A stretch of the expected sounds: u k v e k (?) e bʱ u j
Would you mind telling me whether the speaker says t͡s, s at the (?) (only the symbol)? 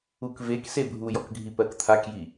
s